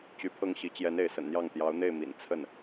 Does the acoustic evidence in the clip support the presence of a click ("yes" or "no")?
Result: no